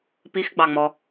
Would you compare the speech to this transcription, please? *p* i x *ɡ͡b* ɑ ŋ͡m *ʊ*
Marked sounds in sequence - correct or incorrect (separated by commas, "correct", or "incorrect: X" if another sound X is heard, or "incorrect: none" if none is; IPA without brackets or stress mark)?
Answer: correct, correct, incorrect: ɔ